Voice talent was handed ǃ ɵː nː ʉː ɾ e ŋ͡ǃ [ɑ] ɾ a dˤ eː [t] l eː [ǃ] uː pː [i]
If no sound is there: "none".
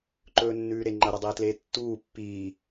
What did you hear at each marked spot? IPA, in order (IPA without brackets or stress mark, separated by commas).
ɐ, t, tː, iː